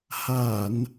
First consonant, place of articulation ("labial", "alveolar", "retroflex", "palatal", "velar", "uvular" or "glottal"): glottal